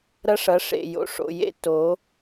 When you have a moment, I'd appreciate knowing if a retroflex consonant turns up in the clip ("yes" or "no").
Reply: yes